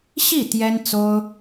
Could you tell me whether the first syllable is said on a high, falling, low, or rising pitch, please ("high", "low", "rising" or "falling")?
falling